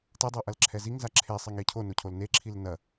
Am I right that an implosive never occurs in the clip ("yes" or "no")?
yes